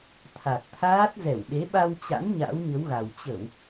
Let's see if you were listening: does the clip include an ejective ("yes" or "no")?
no